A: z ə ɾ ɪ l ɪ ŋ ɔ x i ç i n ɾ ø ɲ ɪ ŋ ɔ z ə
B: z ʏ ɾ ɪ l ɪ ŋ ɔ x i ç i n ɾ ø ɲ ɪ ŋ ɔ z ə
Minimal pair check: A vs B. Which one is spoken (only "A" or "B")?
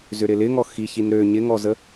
B